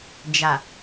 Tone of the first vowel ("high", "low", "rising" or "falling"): low